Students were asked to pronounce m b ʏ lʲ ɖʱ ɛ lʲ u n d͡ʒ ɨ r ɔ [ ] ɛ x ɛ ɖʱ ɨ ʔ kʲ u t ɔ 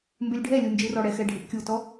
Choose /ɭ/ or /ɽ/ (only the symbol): ɽ